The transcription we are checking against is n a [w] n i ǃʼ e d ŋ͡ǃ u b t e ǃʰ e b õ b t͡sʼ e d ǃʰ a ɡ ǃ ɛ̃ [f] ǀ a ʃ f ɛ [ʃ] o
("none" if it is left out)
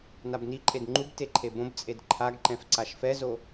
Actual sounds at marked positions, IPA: b, f, z

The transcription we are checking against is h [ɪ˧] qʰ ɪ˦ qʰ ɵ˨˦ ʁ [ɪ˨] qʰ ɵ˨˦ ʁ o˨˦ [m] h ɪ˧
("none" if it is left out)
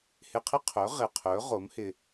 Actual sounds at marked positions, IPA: ɪ˧, ɪ˨, m

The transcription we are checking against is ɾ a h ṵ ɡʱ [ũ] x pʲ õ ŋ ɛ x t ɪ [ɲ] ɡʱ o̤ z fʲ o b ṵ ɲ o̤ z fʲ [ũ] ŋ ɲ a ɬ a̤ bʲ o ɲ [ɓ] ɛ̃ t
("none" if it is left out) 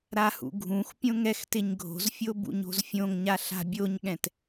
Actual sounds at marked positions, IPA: ũ, ɲ, õ, ɠ

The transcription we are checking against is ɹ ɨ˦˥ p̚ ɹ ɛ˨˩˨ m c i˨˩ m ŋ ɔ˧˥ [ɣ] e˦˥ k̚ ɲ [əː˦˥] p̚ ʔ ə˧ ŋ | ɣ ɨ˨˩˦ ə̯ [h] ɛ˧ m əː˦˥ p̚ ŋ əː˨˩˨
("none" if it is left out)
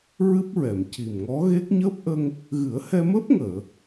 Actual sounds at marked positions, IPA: ɣ, əː˦˥, h

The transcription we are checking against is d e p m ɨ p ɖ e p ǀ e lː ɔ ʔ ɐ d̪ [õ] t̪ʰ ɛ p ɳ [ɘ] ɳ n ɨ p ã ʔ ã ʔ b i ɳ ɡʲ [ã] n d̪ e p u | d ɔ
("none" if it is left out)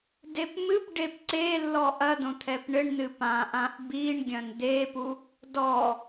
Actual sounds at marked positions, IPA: õ, ɘ, ɐ̃

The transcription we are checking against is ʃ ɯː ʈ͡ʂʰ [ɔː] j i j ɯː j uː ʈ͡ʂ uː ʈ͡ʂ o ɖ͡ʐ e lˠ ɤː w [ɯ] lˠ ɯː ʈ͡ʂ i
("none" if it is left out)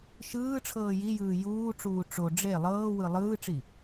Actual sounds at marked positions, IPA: ɤː, ɯ

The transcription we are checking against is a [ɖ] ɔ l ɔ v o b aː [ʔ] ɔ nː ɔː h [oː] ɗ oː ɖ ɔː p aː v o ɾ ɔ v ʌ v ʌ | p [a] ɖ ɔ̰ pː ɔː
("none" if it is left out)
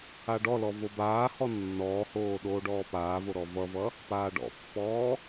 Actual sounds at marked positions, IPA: ɖ, h, oː, aː

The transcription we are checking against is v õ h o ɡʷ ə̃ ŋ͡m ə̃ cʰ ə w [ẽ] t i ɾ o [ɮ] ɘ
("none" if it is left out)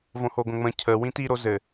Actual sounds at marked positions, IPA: ĩ, z

